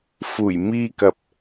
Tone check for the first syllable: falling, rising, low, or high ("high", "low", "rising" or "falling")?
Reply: low